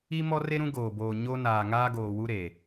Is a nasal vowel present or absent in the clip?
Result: present